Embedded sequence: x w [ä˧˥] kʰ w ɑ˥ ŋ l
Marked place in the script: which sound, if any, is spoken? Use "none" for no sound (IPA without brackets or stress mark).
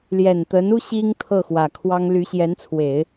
ä˨˩